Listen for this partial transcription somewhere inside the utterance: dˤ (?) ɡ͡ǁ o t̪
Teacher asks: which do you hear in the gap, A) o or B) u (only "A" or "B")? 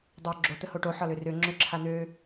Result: A